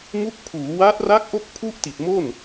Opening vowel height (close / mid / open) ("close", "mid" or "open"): close